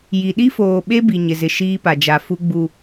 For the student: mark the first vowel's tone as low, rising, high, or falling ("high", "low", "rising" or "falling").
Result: low